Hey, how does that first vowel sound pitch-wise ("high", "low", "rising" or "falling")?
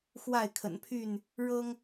falling